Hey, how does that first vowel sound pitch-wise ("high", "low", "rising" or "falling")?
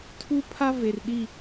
high